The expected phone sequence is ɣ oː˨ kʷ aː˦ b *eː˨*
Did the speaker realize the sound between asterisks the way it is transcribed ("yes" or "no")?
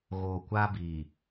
no